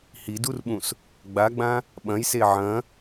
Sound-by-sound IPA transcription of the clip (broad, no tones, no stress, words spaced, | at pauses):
hidurɓũs | ɡ͡baɡ͡bã | ɓɐ̃jse ʕɐ̃